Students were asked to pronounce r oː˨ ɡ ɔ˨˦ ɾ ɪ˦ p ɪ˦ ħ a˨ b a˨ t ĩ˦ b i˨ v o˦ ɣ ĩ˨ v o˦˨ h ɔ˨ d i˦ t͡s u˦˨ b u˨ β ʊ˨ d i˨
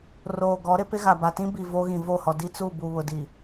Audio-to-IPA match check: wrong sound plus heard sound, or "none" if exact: ħ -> ɣ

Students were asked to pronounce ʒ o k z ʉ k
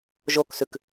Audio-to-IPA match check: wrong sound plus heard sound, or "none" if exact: z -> s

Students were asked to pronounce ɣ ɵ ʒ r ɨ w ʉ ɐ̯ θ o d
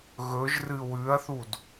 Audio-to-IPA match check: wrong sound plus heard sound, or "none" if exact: o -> u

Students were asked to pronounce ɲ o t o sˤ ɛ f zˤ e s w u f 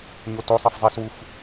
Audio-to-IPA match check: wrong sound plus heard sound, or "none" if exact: none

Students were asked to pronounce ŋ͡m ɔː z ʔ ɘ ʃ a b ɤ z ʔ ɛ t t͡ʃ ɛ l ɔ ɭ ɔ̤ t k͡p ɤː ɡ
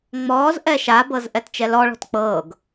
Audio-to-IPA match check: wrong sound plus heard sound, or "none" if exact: ɘ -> ɛ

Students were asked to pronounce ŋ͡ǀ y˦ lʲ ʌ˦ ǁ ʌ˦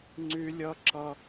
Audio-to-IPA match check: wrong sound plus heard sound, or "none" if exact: none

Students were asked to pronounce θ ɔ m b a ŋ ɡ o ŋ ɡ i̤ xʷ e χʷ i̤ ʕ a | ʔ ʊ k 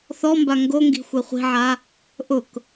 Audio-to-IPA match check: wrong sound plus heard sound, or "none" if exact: none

